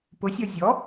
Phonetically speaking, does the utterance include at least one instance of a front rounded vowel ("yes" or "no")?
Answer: no